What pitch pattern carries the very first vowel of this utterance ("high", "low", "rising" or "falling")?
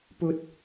high